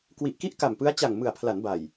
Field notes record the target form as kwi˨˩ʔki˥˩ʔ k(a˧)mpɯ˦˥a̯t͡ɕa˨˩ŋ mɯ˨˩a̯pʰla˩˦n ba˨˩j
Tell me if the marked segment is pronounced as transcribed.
no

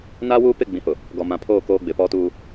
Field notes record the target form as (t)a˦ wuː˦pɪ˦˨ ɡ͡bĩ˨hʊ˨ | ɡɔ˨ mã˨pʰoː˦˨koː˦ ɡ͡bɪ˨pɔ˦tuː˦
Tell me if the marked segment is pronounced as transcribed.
no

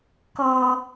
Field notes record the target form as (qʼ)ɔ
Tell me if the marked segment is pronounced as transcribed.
no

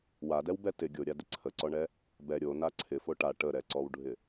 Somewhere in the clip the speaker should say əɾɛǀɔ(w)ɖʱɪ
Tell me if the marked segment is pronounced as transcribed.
yes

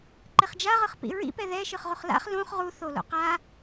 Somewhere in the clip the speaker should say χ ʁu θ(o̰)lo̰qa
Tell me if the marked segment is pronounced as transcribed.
no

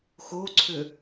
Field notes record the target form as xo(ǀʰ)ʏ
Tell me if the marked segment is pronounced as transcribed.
yes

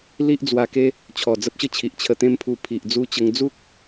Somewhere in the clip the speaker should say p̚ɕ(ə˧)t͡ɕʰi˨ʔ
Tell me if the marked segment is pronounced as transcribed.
no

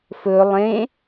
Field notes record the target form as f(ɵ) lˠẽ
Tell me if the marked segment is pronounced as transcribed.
yes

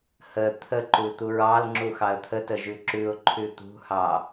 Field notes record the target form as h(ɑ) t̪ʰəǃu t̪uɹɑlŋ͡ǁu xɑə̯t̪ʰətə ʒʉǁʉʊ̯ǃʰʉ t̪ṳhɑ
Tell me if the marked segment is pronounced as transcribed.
no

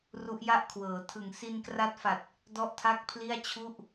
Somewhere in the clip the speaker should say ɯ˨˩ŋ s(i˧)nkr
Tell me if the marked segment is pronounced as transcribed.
yes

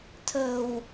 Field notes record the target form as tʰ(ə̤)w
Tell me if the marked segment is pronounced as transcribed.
yes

